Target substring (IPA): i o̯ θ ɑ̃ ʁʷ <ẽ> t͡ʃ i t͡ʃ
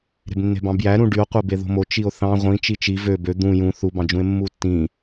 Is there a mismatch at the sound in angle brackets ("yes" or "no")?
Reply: yes